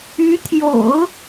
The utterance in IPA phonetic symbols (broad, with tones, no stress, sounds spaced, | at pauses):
y˧˥ t̪ʰ j o̰˨˩˦ ʊ̯